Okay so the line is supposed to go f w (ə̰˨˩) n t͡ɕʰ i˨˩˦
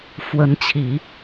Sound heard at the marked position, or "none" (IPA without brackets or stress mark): ə˧˥